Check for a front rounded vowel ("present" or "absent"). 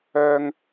present